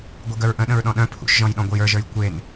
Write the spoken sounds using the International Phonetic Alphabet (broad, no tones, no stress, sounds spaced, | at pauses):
ɡʷ ɯ ɡ œ ɹ ʔ ə̃ ɗ ə̃ ɹ ɗ ɔ̃ ɗ œ̃ pʰ ṵ ʃ ʒ ɔ̃ j ɗ ɔ̃ ɡʷ ə j ə˞ ʒ ə˞ j kʷ e n